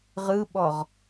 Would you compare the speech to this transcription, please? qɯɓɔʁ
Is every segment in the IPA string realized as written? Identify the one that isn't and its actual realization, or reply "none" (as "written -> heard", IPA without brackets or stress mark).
q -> ʁ